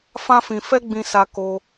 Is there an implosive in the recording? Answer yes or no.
no